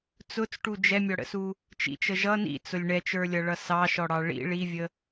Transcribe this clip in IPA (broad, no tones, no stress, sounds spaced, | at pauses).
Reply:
t͡s ʊ t͡s ʈ u d͡ʒ ɛ mʲ ɔ ɽ ə̰ s u | t͡ʃ ḭ t͡ʃ ə ʒ ʌ n ḭ t͡s ʊ lʲ ɳ ɛ t͡ʃ ə˞ lʲ ʌ ɭ ʌ s ɑ ʃ ɔ ɽ ɑ ɭ ḭ ɭ i vʲ ə